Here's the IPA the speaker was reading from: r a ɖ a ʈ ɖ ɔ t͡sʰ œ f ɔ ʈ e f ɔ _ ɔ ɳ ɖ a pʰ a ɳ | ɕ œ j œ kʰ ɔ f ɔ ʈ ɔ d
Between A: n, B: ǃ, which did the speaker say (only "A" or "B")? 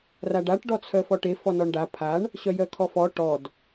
A